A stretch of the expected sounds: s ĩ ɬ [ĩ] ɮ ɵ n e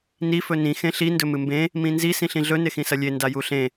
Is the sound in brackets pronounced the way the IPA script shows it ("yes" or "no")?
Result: yes